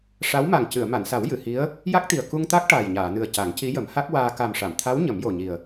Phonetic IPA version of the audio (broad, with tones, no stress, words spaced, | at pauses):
ʂa˧˥wma˨˩ŋ cɨ˨˩˨ə̯ma˨˩˨nsa˨˩˦w jɨ˨˩˨hi˧˥ə̯ | ja˦˥k̚t̪i˨˩ə̯ ku˧ŋt̪a˦˥k̚ ʈaː˨˩jɲaː˨˩˨nɨ˨˩ə̯ ca˨˩˦ŋci˧˥jə˨˩˦m ha˦˥k̚waː˧ ka˨˩mʂa˨˩˨mt̪ʰa˧˥w ɲə˨˩˦mjo˨˩ɲi˨˩ə̯